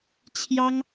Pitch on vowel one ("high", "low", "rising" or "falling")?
high